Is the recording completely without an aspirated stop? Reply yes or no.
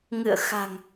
yes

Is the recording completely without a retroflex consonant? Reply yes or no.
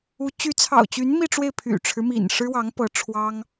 no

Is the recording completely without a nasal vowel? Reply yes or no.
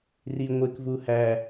yes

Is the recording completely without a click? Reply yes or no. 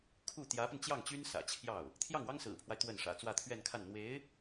yes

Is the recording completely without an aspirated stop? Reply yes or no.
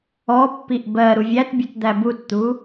yes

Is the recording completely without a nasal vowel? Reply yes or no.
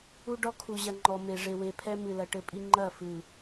yes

